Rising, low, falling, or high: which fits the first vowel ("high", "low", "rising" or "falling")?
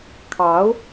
rising